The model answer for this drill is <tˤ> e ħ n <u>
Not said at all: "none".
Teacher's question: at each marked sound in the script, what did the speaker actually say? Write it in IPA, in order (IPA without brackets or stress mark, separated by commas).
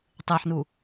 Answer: tˤ, u